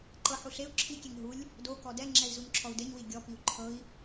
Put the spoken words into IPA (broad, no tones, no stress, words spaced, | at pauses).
ǃɤħu ɬeu̯ ǁʰikʲeŋ ɦulʲ | dokɔ dɛŋ͡ǁɛi̯ zuɲǁʰɔu̯deɲwi ɡʲɔpiu̯ ǃʰɤi̯